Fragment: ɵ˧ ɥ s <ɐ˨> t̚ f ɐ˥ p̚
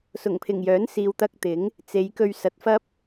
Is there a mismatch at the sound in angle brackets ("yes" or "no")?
no